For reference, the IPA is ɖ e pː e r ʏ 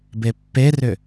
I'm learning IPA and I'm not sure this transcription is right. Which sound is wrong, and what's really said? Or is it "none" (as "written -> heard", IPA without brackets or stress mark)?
ɖ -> b